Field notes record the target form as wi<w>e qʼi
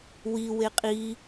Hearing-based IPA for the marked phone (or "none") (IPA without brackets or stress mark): w